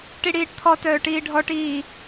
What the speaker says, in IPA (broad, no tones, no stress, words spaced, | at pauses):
ʈiɽiːʈt̪ʰɔtœː ʈiːɖʱɔʈiː